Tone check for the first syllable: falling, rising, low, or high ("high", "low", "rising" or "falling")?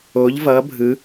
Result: rising